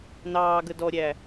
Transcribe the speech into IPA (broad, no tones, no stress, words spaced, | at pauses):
nɑːɡə dɔɾʲæ